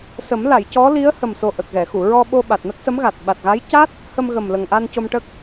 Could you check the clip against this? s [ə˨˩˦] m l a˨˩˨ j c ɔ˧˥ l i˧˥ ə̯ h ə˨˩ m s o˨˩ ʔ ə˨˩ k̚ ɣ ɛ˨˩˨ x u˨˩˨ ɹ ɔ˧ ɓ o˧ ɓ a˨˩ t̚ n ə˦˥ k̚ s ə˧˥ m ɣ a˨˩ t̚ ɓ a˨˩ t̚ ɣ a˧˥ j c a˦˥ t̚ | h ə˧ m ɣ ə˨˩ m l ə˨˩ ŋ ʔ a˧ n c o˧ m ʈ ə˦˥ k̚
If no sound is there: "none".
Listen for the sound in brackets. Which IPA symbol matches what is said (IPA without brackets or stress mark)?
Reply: ə˨˩˦